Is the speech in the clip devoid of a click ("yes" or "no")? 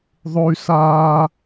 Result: yes